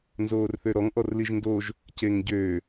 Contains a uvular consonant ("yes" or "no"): no